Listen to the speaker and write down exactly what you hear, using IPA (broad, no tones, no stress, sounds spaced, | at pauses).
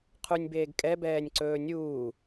qʰ u nʲ b eː ɡ kʼ ɛ b ɛː nʲ ǀ ɵː nʲ uː